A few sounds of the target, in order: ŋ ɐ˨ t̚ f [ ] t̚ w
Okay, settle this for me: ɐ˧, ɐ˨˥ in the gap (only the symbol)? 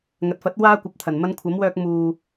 ɐ˨˥